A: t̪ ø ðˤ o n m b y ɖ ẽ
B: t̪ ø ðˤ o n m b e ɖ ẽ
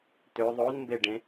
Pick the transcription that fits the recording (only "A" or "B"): B